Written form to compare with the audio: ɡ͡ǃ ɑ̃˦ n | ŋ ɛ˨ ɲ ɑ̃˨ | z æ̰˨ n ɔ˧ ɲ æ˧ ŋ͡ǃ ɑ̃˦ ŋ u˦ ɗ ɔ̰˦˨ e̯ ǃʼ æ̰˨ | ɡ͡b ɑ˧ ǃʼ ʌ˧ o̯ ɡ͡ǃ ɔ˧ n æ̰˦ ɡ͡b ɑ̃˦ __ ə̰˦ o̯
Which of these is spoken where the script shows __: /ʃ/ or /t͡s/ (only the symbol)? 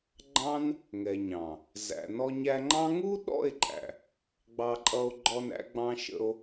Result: ʃ